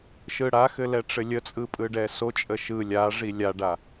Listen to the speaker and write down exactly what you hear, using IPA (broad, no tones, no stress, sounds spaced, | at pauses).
ʃ ɯ ɽ a x ɘ l ɛ ʈ͡ʂ ɘ lʲ ə t͡sʼ ɯ pʼ ɯ ɖ ɛ s o t͡ʃʼ ə ʃ ɯ lʲ a ʐ i lʲ a ɖ a